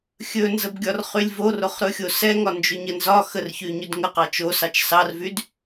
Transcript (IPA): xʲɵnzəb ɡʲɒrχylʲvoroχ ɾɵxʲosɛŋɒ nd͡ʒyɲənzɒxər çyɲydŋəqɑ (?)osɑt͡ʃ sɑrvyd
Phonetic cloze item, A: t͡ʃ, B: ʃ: A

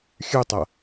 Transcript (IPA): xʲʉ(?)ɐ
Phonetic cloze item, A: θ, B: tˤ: B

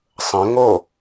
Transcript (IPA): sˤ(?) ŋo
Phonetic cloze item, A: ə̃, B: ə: A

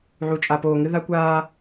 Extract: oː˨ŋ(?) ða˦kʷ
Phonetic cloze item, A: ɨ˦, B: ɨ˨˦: A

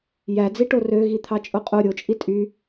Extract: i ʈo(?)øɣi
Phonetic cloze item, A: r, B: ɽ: A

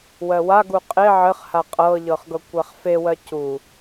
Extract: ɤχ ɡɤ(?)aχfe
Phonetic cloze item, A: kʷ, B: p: A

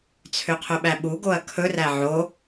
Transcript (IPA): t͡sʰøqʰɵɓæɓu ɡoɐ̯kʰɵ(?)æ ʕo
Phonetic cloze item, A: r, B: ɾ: A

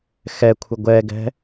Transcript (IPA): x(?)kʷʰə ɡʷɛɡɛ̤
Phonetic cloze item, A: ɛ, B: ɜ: A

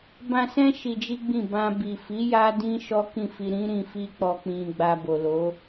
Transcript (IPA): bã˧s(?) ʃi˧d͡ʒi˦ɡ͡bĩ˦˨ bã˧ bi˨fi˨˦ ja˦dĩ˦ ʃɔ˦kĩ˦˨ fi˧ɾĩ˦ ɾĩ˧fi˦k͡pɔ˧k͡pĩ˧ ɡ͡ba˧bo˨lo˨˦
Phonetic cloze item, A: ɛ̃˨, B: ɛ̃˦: B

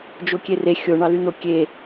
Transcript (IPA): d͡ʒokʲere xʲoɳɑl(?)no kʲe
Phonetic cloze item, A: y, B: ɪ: A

